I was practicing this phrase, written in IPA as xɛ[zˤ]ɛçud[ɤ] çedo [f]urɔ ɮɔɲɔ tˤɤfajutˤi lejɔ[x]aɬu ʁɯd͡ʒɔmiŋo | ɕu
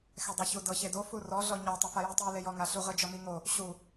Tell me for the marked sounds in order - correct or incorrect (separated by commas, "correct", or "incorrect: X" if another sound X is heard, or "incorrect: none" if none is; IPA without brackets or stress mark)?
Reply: incorrect: dˤ, correct, correct, incorrect: ŋ